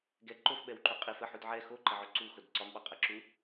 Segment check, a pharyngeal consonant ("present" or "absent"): present